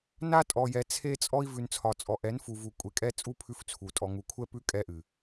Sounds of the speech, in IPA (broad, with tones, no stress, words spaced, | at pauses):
na˦tʼɔ˨jɛ˨ t͡sʰe˦t͡sʼɔ˦i̯ vʉ˨nt͡sʰɒ˨t͡sʼɔ˨ ʔɛ˨˦nfu˨vu˨ kʷʼe˨kʼɛ˦t͡sʼu˦ pʰʉ˦ft͡sʰu˨ tʼɔ˨ŋu˨kʷʰɛ˦pʉ˦ kʼɛ˦ʔɨ˨